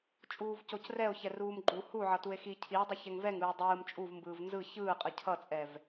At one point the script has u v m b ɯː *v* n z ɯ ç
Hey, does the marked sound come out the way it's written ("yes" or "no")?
yes